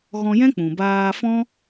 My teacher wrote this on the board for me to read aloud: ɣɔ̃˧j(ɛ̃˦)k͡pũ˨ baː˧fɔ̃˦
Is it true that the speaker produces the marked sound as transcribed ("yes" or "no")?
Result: yes